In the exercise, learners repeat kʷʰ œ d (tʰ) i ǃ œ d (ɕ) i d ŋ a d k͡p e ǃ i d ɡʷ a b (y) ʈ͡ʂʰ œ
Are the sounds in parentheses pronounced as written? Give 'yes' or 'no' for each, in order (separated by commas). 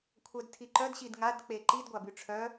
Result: yes, yes, yes